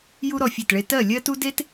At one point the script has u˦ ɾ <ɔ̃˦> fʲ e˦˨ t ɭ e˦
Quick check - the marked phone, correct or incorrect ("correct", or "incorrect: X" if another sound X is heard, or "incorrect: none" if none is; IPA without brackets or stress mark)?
incorrect: ɔ˦